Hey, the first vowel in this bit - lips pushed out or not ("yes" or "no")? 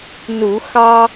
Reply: yes